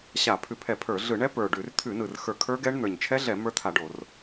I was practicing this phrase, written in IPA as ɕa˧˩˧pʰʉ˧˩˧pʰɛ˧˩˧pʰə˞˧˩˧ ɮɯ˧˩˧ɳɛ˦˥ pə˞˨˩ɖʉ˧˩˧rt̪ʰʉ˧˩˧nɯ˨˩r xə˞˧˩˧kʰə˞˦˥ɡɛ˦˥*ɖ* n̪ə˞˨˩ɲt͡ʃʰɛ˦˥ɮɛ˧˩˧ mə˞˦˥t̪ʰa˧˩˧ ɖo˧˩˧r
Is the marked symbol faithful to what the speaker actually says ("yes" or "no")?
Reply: no